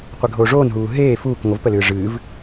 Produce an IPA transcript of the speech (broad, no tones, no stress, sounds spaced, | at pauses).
qʷ e ɡʱ oː ʐ oː n ɦ uː ɦ eː f uː k ŋʷ ə v p ə l ɨː ʐ ɨː v